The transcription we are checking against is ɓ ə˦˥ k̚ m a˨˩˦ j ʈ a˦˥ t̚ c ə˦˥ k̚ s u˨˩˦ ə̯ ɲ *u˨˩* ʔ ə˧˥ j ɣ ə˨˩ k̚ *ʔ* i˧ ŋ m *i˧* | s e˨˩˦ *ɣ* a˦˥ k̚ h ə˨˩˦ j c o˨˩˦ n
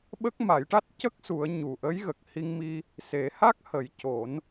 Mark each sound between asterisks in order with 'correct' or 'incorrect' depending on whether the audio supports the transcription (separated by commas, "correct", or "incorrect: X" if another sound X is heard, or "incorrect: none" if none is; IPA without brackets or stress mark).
correct, incorrect: h, correct, incorrect: h